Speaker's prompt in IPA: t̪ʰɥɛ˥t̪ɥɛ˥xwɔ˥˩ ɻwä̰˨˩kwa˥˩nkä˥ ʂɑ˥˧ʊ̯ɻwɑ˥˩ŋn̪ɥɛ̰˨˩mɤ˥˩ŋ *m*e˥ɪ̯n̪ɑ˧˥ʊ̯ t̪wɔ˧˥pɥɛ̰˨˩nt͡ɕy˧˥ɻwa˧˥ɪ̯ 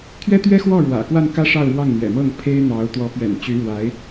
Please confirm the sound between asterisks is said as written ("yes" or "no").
no